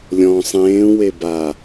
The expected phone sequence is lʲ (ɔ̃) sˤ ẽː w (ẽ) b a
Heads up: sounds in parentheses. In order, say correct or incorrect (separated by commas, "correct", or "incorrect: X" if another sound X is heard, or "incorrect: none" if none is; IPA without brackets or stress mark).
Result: correct, incorrect: e